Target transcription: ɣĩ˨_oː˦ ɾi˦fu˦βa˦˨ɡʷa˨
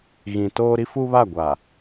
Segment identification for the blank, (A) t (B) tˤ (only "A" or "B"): A